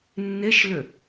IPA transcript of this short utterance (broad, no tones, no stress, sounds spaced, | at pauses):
nː e ʃ l ʏ